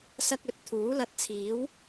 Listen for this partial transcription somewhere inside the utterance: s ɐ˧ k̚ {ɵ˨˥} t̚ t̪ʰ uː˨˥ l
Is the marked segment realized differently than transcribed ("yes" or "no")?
no